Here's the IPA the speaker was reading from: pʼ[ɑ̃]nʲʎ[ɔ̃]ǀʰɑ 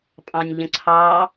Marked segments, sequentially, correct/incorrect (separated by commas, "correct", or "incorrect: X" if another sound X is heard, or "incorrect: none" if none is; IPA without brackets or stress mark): correct, incorrect: ə̃